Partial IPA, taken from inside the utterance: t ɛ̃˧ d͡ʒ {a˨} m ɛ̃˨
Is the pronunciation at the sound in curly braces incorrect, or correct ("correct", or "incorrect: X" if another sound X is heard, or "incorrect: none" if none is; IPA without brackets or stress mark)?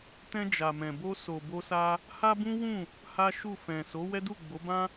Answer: correct